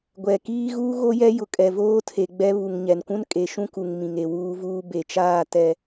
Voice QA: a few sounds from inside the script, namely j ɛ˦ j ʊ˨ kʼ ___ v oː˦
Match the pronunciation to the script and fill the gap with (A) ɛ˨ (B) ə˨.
A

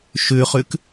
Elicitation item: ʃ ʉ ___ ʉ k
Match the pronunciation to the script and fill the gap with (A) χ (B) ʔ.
A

